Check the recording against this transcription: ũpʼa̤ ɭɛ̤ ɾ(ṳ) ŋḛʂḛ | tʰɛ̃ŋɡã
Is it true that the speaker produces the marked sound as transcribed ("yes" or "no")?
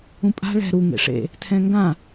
no